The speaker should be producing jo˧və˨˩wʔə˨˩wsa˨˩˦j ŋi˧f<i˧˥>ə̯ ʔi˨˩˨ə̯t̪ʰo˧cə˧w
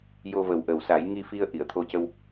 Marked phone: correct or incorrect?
incorrect